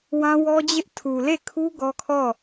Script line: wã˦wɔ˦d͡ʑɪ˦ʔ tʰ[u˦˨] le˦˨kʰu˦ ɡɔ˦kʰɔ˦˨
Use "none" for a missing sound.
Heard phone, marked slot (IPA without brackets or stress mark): u˨